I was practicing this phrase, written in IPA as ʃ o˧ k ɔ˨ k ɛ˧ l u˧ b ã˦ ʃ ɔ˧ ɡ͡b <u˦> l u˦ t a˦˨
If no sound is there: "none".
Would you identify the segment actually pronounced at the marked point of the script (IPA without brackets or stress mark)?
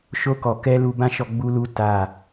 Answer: u˦